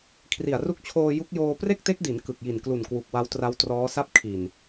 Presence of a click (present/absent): absent